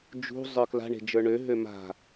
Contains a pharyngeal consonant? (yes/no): no